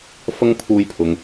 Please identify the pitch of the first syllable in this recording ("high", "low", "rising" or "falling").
high